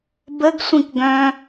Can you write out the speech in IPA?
bəɡ sʷĩkɡœ̃

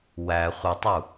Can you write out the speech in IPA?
wæ χʷətˤu

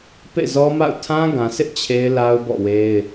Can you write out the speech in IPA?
pḛ˦˨zɔ˦ma̰˦˨ʊ̯ tʰã˦ɡã˨sʰɪ˦ʔ t͡ɕʰe˦ɪ̯la˦ʊ̯bɔ̰˦˨we˦ɪ̯

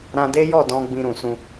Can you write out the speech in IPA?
ɾã˧de˦jɔ˦˨dɔ̃˧ ɡ͡bĩ˧ɾũ˨sũ˧

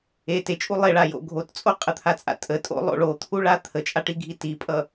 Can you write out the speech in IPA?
e tet͡ʃʼu lˠeɭajo̰ ɡʱott͡sʼo qʼət̪ʰat͡sʼa̰ tʼətʼo̰lˠo̰ ɭot̪ʰuɭa t̪ʰət͡ʃʼaʈiɡʱi tipʼʌ

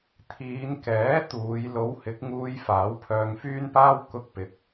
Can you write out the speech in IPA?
t̪ʰiː˨˧nkɛː˨˥ t̪uː˨˧j lo˨˥whɪ˨˥k̚ŋuː˧j faː˨˥wpʰœː˧ŋfyː˥npaː˥w kʊ˧k̚pɪ˨k̚

